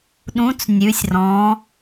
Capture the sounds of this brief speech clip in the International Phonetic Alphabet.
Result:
ɗ ũ˨˥ t͡s nʲ ʉ˩˧ sʲ r ɔ̃˩˧

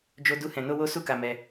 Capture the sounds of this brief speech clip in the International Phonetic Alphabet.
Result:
d͡ʒ o˦ d u˦ h ɛ̃˧ n o˦ w o˦ s u˦ k a˧ m ɛ˧

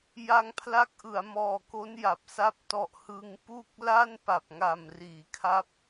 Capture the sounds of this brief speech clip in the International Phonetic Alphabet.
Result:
j a˧ ŋ pʰ l a˦˥ k̚ ʔ ɯ˩˦ a̯ m ɔː˨˩ k o˦˥ n j a˨˩ p̚ s a˦˥ p̚ t ɔ˨˩ ʔ h ɯ˧ ŋ p u˥˩ k̚ l a˥˩ n p a˨˩ p̚ ŋ a˨˩ m r iː˩˦ kʰ a˦˥ p̚

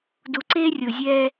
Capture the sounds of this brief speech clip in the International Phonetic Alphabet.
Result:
d u˨ ǀ eː˦ rʲ o˨ zʲ ɛː˦

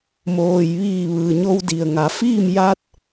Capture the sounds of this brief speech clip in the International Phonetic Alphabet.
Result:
m oː˩ j ʋ iː˧˩ ʋ ɯː˩ ɲ o˧ w d i˩ ə̯ ŋ a˩˧ f iː˥˨ m j a˧ t̚

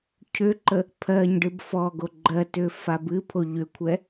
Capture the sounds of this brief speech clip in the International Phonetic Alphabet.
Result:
cʰ ʏ ǃ ə | pʰ ɜ ɲ ɖ ɨ b f ɔ ɡ o ɡ͡ǃ ɜ t ʏ f a b ɨ pʰ o ʎ ʏ kʷʰ ɛ

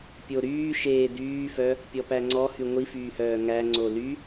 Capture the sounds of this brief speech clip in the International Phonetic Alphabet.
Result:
pʲ o ɾ yː ʃ eː d yː f œ | pʲ ɔ p æ ŋ͡ǀ ɔ h y ŋʷ i f yː h œː ŋ æ ŋ͡ǀ o l y

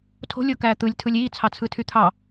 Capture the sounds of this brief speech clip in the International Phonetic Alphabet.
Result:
tʰ o̤ lʲ o k æː t̪ ɯ lʲ tʰ ɯ lʲ iː t͡sʰ ɑ t͡sʰ ɯ tʰ y t̪ʰ ɑ

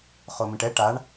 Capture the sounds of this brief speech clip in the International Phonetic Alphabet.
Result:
χ o m ĩ ʈ ɛ ʈ a ɳ

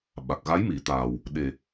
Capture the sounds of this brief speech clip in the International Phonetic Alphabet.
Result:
ɓ a˨˩ k̚ ɣ a˧˥ j m i˨˩˦ t̪ aː˨˩ w | ɗ e˨˩

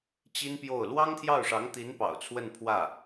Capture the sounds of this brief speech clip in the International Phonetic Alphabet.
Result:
t͡ɕ i˥ n p j o˥˩ ʊ̯ l w ɑ˥ ŋ t̪ʰ j ɑ˥˩ ʊ̯ ʂ ɑ˧˥ ŋ t̪ i˧˥ n p ɑ̰˨˩ ʊ̯ t͡sʰ w ə˥˧ n pʰ w ä˥˩

